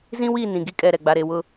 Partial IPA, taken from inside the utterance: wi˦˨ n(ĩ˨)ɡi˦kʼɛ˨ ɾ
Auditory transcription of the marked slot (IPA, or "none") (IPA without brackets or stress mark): ĩ˨